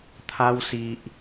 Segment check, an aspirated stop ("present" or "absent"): present